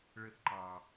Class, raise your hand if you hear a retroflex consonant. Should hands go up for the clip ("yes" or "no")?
yes